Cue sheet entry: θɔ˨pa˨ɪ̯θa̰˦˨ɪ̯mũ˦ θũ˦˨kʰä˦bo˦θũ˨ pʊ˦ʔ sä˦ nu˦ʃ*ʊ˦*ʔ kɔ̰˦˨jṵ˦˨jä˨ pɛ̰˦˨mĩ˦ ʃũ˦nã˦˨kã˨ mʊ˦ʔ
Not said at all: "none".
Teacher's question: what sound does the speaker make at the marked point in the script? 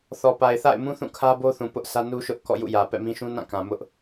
ʊ˦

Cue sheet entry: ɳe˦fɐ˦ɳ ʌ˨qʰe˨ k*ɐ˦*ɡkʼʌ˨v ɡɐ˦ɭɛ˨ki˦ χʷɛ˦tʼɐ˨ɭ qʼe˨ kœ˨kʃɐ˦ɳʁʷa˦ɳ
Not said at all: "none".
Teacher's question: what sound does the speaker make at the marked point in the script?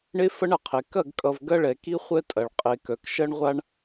ɐ˦˨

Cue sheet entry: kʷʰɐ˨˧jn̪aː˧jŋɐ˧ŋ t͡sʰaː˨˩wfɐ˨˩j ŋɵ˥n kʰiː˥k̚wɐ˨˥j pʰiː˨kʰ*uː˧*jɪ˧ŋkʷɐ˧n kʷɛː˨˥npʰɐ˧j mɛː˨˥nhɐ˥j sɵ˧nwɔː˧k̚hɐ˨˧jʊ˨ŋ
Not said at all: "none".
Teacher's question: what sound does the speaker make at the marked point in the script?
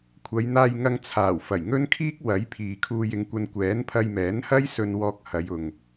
uː˧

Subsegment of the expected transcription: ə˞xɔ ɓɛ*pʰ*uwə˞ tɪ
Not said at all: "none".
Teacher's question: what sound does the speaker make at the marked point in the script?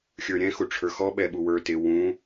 ɓ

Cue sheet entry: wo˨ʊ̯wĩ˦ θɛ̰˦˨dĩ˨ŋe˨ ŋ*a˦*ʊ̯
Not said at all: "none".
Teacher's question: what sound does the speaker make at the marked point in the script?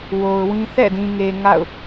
a̰˦˨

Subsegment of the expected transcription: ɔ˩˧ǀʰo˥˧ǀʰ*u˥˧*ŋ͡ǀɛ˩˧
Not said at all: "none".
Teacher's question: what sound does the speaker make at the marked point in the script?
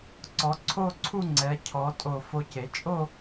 u˥˧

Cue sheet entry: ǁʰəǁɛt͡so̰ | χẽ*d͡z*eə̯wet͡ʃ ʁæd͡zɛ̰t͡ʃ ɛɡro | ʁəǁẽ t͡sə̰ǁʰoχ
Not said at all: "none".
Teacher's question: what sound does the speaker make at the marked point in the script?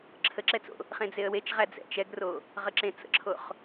d͡z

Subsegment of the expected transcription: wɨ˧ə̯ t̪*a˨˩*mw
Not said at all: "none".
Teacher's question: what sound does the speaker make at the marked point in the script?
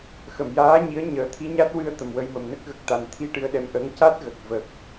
ə˨˩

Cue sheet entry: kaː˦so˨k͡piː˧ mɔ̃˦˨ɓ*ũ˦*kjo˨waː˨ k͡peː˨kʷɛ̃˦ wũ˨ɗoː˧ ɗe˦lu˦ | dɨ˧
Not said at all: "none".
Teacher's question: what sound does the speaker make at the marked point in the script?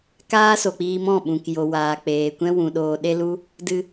ũ˨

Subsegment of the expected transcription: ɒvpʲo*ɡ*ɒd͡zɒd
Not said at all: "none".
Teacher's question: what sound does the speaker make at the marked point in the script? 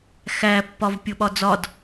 ɓ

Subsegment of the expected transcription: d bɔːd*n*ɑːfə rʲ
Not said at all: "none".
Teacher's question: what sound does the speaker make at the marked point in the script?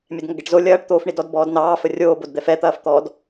n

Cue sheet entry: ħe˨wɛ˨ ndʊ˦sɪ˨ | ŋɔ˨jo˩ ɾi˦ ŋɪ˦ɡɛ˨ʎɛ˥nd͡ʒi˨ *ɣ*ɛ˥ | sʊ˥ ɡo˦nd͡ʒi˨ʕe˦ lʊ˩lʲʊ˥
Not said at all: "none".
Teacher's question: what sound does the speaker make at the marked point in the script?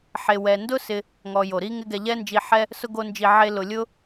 ħ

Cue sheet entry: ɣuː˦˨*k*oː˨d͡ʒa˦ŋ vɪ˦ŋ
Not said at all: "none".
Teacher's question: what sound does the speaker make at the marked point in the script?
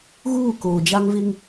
k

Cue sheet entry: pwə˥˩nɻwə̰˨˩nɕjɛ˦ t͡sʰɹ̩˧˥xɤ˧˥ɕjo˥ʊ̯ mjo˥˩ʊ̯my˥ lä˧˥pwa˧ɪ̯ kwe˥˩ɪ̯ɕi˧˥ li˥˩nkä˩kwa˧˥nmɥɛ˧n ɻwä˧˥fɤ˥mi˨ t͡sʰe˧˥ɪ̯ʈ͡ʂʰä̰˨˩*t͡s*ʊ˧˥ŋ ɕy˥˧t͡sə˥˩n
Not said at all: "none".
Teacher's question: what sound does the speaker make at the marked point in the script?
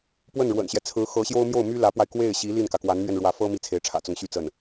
t͡s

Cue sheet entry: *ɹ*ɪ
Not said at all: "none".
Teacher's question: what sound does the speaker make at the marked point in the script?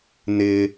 n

